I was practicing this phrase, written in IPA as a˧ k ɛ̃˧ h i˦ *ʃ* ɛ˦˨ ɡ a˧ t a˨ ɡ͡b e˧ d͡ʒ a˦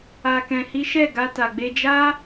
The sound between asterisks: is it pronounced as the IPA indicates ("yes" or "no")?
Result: yes